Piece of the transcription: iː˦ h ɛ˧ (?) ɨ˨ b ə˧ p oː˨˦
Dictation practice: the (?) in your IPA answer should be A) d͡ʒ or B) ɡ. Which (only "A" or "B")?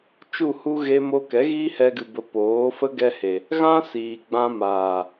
B